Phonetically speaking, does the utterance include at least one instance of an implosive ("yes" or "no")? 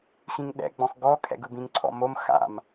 yes